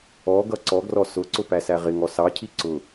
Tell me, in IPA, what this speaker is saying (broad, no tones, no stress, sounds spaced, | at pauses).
ɔ ɡ ʌ ǀ ɔ ɡ r ɔ s ʊ ǀ ʊ p æ s æ ʁ ɪ ŋ ɔ s ɑ cʰ i ǀ ʊ